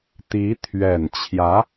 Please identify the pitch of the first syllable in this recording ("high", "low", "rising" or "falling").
rising